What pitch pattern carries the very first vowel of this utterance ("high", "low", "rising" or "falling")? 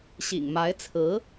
low